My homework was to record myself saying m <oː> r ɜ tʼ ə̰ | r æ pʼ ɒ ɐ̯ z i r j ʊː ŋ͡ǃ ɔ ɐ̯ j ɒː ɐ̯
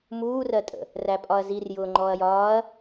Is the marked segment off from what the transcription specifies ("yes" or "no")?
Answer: yes